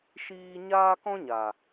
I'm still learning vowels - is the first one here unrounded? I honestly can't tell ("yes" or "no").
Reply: yes